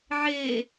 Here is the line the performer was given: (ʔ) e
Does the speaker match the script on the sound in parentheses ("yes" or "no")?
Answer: no